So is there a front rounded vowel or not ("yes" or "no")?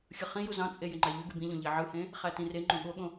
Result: yes